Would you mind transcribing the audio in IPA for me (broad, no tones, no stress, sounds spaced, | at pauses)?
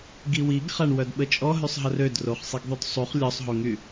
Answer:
ɡ i w i ɡ χ a ɳ w œ d ɓ ə t͡ʃʼ ɔ ɦ y sˤ ɦ ə r ø d r o χ sˤ i ɡ ðˤ y d sˤ u χ lʲ ɔ sˤ ɦ o ŋ y